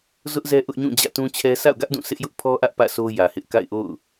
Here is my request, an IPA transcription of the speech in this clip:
z ʊ˦ ʔ z ɛ˦ ʔ ʊ˦ ʔ ɲ ũ˦˨ d͡ʑ ä̰˦˨ t ũ˦ t͡ɕʰ ɛ˦ s a̰˦˨ ʊ̯ ɡ ä˦ ʔ d ũ˦˨ s ɪ˦ ʔ j ʊ˦ ʔ pʰ ɔ˦ ʔ ä˦ ʔ p ä̰˦˨ sʰ o˦ j ä˨ h ɪ˦ ʔ k a̰˦˨ ɪ̯ ʔ o̰˦˨ ʊ̯

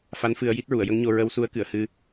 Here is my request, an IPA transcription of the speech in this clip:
f a˧˥ n f ɨ˧ ə̯ j i˦˥ t̚ ɹ u˨˩˨ ə̯ j ə˧˥ ŋ ɲ o˧ ɹ ə˧˥ w s u˧˥ ə̯ k ɨ˨˩˨ ə̯ h ɨ˧

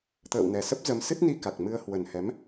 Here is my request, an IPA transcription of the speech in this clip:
t̪ ə̰ː˧˨ w n ɛ˨˩ s ə˦˥ p̚ z ə˨˦ m s ɨ˦˥ t̚ n i˧ k a˨˩ k̚ m ɨ˧ ə̯ h w ə˨˩ n h ɛ˨˦ m

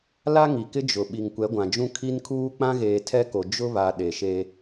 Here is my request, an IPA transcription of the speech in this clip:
l a˦ ŋ i˨ k ɪ˦ d͡ʒ ʊ˨ ɓ i˨ ŋ kʷ ɛ˨˦ ɡʷ ã˨ d͡ʒ ũ˦ kʰ i˦ n kʰ uː˦ k͡p ã˦ ɣ eː˨ tʰ ɛ˦ k o˨ d͡ʒ ʊ˦ β a˨ ɗ e˨ ʃ e˦

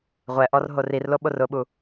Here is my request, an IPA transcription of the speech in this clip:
ʁʷ ɛ ʔ ɔ r ɦ o r i r l o ɓ o r ʊ ɓ u

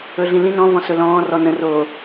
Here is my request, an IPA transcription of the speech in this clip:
ɵ ɮ ĩ l ĩ n ɔ̃ v ɔ̃ s ɵ l ɔ̃ː r ɔ n ə̃ r oː

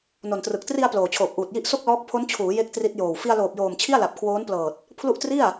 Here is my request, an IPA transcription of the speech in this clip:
n o˨˩ n t r ɯ˨˩ k̚ t r i˧ a̯ p l oː˨˩ t͡ɕʰ oː˨˩ p̚ ʔ uː˨˩ t̚ j i˥˩ ʔ s o˥˩ k̚ l ɔː˦˥ k̚ pʰ o˦˥ n t͡ɕʰ uː˩˦ j e˦˥ k̚ t r i˦˥ t̚ j oː˨˩ w f i˧ a̯ l oː˨˩ p̚ j oː˨˩ m t͡ɕʰ i˥˩ a̯ l a˨˩ p̚ kʰ w oː˦˥ n p l ɤː˨˩ t̚ | pʰ l u˥˩ ʔ t r i˥˩ a̯

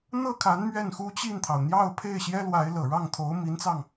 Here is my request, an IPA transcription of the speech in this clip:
n̪ ɤ˥˩ kʰ a˧˥ n m ɥ ɛ˥˩ n x u˥ t͡ɕ i˥˩ n t̪ʰ ɑ˩ ʊ̯ n̪ j ɑ˥˧ ʊ̯ pʰ e˥˩ ɪ̯ ɕ j ɛ˥ l w a˧˥ ɪ̯ l ɤ˨˩ ɻ ɑ˥˩ ŋ t̪ʰ o˧˥ ʊ̯ m i˧˥ n t͡s ɑ˧ ŋ

